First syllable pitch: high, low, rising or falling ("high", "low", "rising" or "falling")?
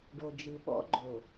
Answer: low